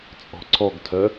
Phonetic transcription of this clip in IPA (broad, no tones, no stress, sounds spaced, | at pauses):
t͡sʼ ɔ̤ ǀʰ ɔ ɡ tʰ œ